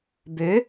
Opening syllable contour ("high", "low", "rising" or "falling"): rising